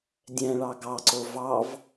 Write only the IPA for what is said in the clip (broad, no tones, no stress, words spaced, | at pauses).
dʲɛ̃ɭɑ ɡɑǀo vɑv